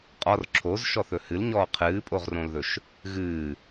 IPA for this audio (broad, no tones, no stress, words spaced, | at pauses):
qʼɒr ǁʰozʃɔθɵ hɨlɲɔː qʰɨːpʼoʁrõlðɵʃ | ɣɨː